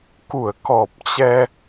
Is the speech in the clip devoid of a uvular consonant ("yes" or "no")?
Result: yes